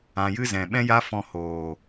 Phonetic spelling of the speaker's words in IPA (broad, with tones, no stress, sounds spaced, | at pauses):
ã˨ j ɨ˦ z ɛ̃˨ ɓ ɛ̃˦ j a˦ f ɔ̃˧ h oː˨